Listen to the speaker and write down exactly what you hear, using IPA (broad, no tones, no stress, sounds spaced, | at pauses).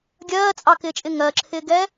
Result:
ɡʲ ɜː t͡sʼ ɑ k ɪː t͡ʃʼ ɪ ŋ ɜ ǁʰ ɪː ɡ ɛ